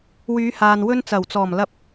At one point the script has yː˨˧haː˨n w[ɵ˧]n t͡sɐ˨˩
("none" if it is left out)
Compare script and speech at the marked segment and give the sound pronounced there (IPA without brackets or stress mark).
ɵ˧